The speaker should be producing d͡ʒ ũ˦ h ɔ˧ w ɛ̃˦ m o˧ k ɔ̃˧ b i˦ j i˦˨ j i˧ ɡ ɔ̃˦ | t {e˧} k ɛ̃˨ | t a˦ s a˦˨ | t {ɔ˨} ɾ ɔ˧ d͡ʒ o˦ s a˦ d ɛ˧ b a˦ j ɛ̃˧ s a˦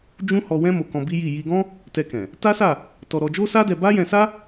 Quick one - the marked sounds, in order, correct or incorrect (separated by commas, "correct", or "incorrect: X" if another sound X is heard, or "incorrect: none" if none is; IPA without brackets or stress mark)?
incorrect: ɛ˧, incorrect: ɔ˧